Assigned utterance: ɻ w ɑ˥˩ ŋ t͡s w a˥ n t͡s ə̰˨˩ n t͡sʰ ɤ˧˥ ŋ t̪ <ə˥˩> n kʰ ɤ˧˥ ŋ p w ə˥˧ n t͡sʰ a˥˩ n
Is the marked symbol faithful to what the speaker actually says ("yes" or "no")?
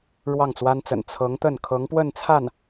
yes